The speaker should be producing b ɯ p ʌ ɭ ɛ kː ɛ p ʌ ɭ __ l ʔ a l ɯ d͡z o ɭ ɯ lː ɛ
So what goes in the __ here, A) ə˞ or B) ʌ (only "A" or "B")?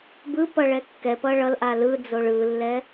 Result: B